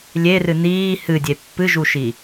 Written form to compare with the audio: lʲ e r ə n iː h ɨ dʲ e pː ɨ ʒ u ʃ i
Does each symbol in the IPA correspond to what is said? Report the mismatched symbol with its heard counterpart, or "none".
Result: ə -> ɨ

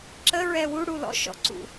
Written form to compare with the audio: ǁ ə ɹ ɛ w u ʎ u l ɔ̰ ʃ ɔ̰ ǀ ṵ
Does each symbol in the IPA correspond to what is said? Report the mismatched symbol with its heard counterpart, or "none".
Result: ʎ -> ɽ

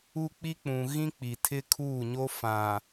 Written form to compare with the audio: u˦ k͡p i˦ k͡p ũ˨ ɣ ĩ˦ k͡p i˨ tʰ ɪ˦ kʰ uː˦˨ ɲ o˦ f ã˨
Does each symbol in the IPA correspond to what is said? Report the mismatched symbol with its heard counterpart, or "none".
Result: none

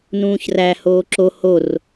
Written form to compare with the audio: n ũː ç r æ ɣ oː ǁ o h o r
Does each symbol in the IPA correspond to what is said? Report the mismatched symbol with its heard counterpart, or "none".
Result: ɣ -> h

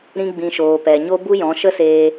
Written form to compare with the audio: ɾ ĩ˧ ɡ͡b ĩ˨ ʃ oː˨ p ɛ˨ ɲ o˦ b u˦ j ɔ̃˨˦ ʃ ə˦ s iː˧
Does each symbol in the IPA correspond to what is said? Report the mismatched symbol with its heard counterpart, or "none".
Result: iː˧ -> eː˧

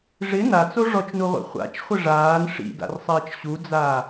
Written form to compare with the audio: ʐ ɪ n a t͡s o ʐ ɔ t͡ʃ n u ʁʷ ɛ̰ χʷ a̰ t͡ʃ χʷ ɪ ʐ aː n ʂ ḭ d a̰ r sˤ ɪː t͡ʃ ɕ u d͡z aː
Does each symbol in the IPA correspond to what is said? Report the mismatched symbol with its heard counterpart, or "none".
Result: none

